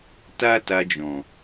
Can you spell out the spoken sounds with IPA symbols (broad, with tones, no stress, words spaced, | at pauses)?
ta˦ta˧d͡ʒɔ̃˨